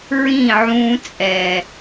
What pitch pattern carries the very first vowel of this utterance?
falling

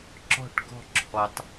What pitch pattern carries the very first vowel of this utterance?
falling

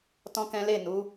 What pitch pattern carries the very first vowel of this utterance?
high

